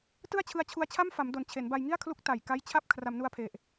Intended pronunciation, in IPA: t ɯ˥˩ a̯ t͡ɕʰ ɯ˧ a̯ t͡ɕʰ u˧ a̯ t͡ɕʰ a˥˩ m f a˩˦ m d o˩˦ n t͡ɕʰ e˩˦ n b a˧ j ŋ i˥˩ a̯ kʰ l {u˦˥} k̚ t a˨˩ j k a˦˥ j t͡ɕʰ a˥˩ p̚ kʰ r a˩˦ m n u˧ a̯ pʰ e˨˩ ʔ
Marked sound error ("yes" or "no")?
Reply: no